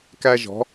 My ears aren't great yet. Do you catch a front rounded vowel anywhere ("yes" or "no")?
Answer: no